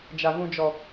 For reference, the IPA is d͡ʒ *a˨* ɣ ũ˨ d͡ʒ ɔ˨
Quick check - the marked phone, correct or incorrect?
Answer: correct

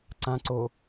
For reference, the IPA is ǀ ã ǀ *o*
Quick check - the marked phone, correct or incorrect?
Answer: correct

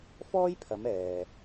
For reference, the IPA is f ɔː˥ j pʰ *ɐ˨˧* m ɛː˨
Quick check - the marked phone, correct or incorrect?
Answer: correct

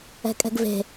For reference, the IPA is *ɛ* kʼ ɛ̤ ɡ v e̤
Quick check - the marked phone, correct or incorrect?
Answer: incorrect: ɛ̤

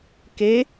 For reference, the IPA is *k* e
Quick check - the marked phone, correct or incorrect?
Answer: correct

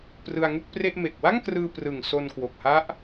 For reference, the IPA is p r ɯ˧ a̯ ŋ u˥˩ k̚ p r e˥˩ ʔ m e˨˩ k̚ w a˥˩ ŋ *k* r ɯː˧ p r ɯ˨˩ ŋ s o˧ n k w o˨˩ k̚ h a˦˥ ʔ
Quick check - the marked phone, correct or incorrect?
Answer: correct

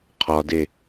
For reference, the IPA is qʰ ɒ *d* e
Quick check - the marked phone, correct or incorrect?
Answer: correct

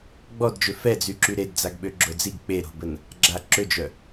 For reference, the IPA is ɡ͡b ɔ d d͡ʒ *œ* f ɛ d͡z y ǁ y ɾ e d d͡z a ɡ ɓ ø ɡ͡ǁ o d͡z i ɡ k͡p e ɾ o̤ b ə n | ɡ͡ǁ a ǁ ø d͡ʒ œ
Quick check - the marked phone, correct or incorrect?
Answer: incorrect: ø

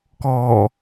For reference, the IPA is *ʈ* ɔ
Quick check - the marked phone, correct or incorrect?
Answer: incorrect: k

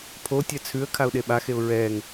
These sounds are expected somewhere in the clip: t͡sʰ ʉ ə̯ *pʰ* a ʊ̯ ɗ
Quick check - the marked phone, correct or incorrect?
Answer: incorrect: kʰ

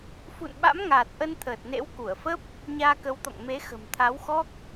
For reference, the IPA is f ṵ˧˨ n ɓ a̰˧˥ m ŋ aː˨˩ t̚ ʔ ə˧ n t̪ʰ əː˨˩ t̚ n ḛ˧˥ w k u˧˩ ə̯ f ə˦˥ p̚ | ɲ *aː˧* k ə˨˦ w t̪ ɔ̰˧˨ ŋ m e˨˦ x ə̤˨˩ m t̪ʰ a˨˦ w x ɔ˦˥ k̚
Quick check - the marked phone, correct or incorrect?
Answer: correct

